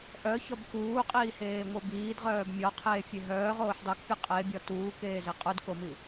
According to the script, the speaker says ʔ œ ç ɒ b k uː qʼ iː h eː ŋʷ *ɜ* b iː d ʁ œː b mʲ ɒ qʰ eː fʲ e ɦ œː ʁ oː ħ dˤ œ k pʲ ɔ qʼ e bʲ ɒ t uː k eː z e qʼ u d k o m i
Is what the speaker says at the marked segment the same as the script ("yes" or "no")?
yes